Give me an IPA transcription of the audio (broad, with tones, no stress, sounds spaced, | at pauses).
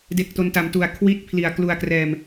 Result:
d e˦˥ k̚ t o˦˥ n t a˧ m t u˧ a̯ kʰ w i˦˥ t̚ pʰ l i˨˩ a̯ k l u˧ a̯ k r ɛː˧ m